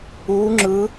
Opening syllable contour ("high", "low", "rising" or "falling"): rising